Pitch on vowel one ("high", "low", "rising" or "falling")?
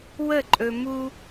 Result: falling